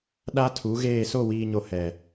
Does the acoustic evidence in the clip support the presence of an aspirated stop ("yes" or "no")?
yes